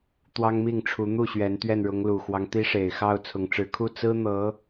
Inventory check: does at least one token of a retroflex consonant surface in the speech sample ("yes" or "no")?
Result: yes